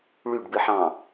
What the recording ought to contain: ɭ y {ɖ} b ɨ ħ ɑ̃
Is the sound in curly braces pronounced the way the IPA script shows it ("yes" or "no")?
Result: yes